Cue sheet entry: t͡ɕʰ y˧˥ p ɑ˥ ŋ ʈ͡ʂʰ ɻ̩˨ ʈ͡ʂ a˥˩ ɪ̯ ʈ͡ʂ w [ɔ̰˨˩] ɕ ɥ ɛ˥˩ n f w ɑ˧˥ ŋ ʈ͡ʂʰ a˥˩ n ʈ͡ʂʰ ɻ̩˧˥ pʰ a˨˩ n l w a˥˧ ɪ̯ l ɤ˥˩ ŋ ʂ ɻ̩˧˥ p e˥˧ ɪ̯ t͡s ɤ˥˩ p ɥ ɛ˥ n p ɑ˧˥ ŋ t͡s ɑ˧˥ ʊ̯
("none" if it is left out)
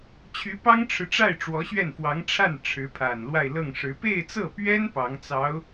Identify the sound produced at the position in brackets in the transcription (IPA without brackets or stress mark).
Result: ɔ˧˥